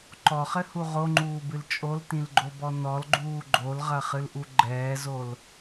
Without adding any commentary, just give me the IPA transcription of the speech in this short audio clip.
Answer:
ǃɔχɘhu ʁoŋ͡ǃuːbɨl t͡ʃʼoltĩlɡ͡ǃobɔ nɔlɡ͡ǃuː ɡ͡ǃolʁɐχɨlʔu ɡ͡ǃɛːzol

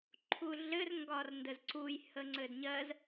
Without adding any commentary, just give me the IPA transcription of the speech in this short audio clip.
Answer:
ǃʰuɮɘr ŋɡɒrndəzǀuj həŋ͡ǀɘdɲɜz

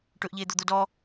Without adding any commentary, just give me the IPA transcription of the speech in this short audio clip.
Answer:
ʈɵʔʎeːd̪od̪o dɔ

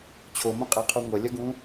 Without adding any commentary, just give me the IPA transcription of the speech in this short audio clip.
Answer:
t͡ɕʰomõqʼeqʰu ŋʷɐlʲɐɡũ

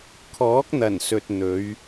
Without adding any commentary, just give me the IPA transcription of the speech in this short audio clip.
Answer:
kʰɔː˨˥k̚n̪ɐ˨˩n sɵ˨t̚n̪ɵ˨˧ɥ

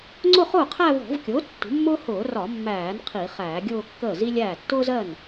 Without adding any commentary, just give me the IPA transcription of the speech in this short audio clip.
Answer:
ŋ͡ǀʊ˥˧χʊː˥˩qʰæ˥˧ vɔ̤˧˩˧vkʲʊː˩˥ tːṳ˩˥mːʊː˥ hʊː˧˩˧ rɒ˧˩˧mːæː˧˩˧n qʰi˧˩˧χæː˧˩˧ɡʲʊː˥˧kːəː˥˩ zi˥lʲæː˥˩ tːʊː˥zɜ˥˩n

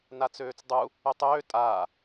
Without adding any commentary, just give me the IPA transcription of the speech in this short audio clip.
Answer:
nat͡søːt͡sdˤu | øtˤøː tʼaː

